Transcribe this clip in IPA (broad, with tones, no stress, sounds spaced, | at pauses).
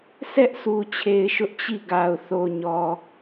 s ɛ˦ ʔ s u˨ t͡ɕʰ e˨ ɪ̯ ʃ ʊ˦ ʔ t͡ɕ i˦˨ ɡ a˨ ʊ̯ θ o˨ ɲ ɔ˨